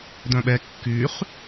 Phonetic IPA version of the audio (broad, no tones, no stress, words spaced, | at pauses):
dœ̃ɓɛ kːyχ